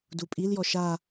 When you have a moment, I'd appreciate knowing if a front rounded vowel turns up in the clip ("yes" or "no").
no